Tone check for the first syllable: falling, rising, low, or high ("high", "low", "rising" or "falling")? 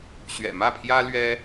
low